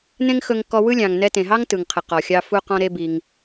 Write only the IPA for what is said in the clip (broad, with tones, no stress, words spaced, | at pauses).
nẽ˥ŋxɵ˧ŋkɔ˧wɯ˥ lʲɑ̃˩ŋ nɛ˧tẽ˩ɦɑ˥ŋ tɯ˩ŋqʰɪ˩qɔ˩xʲɑ˧ fu˧ qɔ̃˧ɾe˧ bi˩ŋ